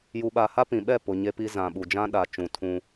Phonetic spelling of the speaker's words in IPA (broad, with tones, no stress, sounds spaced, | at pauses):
j u˨ ɓ a˨ h a˦ p ĩ˨ ɓ ɛ˦˨ p ʊ˨ ɲ e˦ p i˦ z ã˨ ɓ u˨ d͡ʒ ã˦ ɗ a˨ t͡ʃ ũ˨ tʰ ũ˦